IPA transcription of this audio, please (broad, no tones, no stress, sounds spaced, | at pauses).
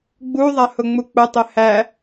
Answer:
ɡ͡b u ðˤ a h ʊ ŋ͡m u k͡p ʊ tˤ ɘ h æ